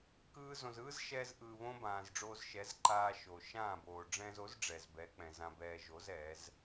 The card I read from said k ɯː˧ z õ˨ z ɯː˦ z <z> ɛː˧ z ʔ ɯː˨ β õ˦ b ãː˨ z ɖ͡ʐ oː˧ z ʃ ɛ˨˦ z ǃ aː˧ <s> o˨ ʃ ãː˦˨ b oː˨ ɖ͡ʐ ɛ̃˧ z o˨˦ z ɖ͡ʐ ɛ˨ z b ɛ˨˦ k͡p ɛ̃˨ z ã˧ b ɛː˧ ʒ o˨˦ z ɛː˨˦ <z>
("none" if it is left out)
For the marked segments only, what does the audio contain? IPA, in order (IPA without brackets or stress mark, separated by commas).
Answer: ʃ, ʃ, z